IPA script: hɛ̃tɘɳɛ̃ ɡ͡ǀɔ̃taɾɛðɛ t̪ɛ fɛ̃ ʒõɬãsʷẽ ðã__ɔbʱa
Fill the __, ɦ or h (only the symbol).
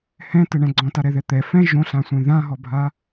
ɦ